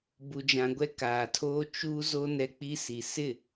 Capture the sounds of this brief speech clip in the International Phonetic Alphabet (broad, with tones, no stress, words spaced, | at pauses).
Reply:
bu˨d͡ʒã˨ɡʷɛ˦ kaː˨tʰoː˦ t͡ʃuː˦zo˦ nɛ˦k͡pi˦ si˨sɪ˦˨